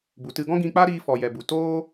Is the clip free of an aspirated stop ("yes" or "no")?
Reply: yes